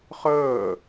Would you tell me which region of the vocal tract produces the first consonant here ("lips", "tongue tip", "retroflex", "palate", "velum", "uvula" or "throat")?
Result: uvula